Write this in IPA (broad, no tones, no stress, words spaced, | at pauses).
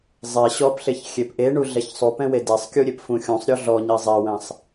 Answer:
zˤe ɕɔpɬeç xʲepʔeɳu ɮɛçsˤupɛ̃we desˤkʲuɾʲep fũxʲũsˤɾʲɔ ɮɔɲi zˤewɛ̃sˤ